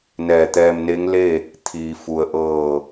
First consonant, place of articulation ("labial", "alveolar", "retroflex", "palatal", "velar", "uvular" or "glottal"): alveolar